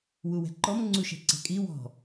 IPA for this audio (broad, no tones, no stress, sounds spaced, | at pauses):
w u w ɛ̤ ǃ ɔ m ŋ͡ǀ u ʃ ɛ̤ ǀ ɛ̤ kʼ i w ɔ̤